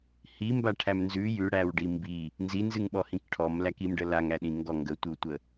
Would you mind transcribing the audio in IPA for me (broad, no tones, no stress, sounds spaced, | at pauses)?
h i m b a ʈʰ æ m n z ʉ j ʉ ɽ æ w ɖ i m b i | n z i n z ɨ ŋ ɓ ɔ h ĩ k ʈʰ ɔ m l æ k i m ɖ ə l a ŋ æ ɗ ĩ ŋ ɡ ɔ ŋ ɡ ə tʷ ɨ w tʷ ə